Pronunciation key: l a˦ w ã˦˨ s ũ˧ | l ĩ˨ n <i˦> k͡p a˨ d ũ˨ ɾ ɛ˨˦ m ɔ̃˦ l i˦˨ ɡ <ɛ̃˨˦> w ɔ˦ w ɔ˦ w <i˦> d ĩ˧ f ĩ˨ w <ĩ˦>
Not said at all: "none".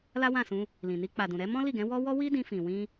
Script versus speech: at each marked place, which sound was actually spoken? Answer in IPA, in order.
i˧, ɛ̃˨˦, i˦, ĩ˧

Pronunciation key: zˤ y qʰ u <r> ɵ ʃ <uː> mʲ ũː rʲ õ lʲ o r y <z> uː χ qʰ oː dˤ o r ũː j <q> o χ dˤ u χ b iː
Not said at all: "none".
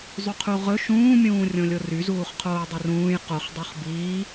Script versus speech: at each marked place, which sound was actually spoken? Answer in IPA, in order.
ʁ, ũː, z, q

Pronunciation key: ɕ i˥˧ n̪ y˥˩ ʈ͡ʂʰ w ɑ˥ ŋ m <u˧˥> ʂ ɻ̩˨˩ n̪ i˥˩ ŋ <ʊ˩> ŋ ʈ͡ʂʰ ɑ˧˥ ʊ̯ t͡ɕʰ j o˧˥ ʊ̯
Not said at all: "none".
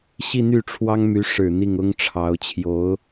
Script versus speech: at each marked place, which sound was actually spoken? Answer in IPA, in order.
y˧˥, ʊ˥

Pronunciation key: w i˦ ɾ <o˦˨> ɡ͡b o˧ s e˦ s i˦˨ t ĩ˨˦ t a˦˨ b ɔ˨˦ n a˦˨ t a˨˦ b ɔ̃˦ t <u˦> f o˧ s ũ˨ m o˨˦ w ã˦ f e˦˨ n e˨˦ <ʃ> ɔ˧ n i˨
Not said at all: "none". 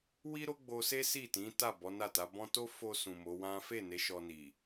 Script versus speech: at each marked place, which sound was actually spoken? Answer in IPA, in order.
o˦, o˦, ʃ

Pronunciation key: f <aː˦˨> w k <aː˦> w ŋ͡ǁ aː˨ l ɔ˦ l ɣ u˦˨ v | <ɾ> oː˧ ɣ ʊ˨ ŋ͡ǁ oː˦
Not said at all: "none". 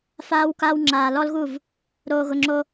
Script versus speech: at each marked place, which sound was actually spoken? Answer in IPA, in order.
aː˦, aː˦, ɾ

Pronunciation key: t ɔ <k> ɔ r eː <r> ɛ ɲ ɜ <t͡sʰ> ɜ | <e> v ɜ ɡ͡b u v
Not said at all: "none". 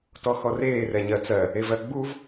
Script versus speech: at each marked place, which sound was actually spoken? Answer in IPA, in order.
x, r, t͡s, e

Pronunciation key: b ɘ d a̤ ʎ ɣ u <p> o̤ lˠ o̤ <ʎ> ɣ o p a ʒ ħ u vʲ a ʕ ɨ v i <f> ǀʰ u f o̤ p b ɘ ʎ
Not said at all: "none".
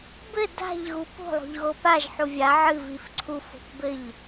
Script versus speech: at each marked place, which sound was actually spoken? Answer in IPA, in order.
p, ʎ, f

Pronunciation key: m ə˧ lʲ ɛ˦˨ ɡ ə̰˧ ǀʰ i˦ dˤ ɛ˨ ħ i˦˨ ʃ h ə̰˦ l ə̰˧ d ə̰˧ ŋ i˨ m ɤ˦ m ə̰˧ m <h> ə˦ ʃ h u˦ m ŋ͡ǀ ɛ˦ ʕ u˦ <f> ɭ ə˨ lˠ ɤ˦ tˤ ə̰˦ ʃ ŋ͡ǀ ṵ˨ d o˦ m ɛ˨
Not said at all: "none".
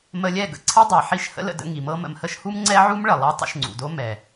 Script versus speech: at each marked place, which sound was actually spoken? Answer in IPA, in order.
h, m

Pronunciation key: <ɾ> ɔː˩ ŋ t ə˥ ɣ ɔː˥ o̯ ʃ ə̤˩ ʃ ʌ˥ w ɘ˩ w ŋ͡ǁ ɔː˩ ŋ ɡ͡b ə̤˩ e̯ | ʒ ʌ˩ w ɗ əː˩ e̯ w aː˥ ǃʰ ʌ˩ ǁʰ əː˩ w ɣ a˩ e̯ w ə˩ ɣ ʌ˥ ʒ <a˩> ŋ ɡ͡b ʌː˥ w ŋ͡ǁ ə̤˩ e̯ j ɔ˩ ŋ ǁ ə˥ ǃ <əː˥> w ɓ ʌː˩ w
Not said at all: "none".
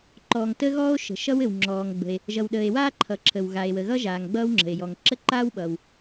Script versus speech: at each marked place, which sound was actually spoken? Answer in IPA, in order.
ǃ, aː˩, aː˥

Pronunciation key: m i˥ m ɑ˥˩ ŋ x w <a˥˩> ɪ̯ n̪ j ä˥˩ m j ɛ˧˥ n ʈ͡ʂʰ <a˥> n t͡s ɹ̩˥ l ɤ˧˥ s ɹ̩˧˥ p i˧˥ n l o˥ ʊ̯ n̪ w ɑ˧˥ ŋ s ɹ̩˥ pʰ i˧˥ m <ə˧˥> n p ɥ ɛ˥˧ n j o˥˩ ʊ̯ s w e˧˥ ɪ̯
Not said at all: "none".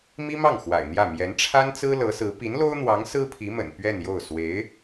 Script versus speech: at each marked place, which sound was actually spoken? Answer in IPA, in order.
a̰˨˩, a˥, ə̰˨˩

